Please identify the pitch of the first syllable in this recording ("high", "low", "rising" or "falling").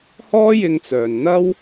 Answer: high